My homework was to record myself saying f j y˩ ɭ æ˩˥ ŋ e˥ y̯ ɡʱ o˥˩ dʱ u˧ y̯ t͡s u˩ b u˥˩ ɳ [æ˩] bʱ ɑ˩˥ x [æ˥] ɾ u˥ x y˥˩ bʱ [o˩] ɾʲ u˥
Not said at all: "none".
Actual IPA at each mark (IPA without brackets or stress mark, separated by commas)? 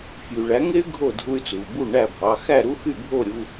æ˥˩, æ˥˩, o˥˩